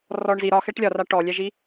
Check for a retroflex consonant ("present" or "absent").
present